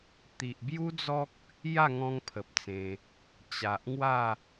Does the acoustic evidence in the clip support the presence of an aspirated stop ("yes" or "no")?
yes